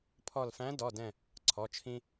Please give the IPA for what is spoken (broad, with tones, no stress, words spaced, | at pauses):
pʰɔ˧˩lfæ̃˧˥ dɔ˩˧˩dɛ̃˧˩ | ǀʰɔ˩˧˩t͡ʃʰĩ˧